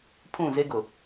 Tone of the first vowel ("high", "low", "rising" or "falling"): falling